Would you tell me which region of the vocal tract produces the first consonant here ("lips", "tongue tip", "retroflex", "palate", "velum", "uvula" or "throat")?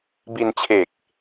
lips